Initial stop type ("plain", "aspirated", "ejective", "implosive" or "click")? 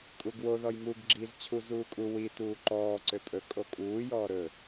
ejective